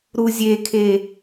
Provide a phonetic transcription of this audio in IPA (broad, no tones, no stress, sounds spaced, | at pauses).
ɾ u zʲ e kʰ e